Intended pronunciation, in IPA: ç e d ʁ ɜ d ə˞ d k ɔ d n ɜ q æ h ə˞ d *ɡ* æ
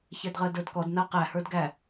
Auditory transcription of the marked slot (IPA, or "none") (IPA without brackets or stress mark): ɡ